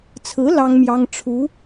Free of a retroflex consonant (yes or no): no